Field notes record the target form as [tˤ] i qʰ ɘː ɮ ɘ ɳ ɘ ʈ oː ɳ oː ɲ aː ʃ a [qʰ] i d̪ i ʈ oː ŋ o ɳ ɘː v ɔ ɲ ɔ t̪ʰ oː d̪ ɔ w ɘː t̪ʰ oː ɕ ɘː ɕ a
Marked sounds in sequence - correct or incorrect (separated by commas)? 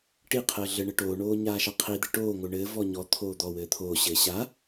incorrect, correct